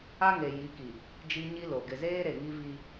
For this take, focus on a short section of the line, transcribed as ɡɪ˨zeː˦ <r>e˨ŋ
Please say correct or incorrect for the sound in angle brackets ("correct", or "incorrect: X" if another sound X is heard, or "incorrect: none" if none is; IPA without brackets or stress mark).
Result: incorrect: ɾ